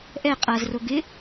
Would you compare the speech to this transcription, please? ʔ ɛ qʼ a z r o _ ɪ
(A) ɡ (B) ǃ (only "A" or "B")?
A